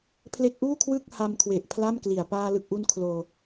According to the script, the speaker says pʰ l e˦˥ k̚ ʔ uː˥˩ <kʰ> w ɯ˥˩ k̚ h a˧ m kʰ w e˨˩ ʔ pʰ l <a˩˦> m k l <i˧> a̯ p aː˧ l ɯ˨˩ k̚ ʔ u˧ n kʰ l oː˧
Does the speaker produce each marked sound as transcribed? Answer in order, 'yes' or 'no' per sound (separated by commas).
yes, no, no